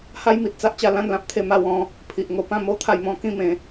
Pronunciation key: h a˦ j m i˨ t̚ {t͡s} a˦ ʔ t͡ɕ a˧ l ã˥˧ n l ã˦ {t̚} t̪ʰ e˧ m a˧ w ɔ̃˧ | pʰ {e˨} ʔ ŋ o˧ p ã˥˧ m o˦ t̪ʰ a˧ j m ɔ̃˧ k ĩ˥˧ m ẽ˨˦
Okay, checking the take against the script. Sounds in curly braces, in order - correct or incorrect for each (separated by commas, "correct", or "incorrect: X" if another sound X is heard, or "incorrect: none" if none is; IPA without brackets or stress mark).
correct, incorrect: p̚, incorrect: i˨